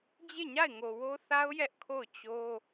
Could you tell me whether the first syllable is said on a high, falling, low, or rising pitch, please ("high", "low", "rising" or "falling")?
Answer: falling